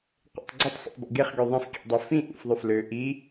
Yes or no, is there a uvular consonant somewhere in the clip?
yes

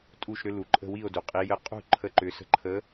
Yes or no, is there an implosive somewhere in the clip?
no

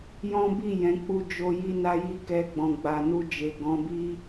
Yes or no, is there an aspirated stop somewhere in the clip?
no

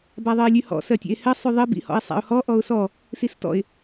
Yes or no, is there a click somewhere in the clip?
no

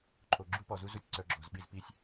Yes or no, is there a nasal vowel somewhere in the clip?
no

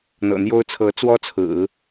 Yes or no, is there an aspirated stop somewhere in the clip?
yes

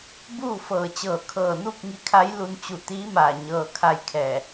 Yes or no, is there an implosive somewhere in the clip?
no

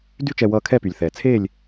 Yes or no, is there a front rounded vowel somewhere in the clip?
yes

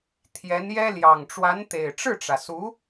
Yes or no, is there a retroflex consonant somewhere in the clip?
yes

